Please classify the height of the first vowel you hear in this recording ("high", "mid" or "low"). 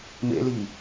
mid